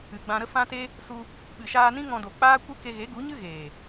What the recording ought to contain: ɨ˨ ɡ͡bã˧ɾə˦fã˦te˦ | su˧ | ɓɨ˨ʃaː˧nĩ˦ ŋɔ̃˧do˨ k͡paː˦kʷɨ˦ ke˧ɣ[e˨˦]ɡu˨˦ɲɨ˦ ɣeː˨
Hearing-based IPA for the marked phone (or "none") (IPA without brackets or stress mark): e˨˦